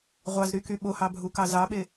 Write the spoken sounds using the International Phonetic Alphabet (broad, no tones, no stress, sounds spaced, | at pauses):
ʁʷ ɑ z ɾ y k y ɓ o h ɑ bʱ u k ɑ z ɑ ɓ e